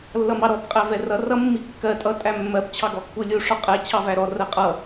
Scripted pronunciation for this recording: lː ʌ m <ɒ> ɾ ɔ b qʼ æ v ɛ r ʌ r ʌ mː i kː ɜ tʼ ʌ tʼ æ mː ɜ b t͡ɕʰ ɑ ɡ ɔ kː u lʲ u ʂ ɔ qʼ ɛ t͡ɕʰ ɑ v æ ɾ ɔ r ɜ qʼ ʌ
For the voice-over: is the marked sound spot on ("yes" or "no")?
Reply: no